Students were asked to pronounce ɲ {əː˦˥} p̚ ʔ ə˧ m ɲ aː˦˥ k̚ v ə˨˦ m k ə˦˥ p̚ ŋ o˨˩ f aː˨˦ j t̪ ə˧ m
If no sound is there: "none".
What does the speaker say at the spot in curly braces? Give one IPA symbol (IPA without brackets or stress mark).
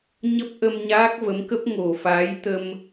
ə˦˥